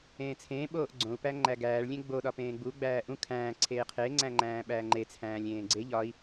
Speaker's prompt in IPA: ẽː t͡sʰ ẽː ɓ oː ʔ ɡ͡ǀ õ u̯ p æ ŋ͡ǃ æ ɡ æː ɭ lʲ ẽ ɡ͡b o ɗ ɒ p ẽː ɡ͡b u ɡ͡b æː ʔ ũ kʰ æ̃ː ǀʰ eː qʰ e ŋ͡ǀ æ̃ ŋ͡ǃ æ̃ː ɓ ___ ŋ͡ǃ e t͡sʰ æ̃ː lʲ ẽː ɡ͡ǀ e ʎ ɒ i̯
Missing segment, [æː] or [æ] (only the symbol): æː